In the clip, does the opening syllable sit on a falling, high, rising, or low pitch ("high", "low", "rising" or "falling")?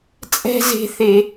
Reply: high